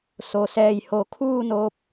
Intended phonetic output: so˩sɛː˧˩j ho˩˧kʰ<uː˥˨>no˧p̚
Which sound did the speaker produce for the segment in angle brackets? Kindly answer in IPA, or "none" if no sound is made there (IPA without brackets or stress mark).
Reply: uː˥˨